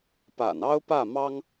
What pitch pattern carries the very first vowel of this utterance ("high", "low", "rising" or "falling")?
low